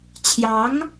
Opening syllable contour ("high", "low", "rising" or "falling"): rising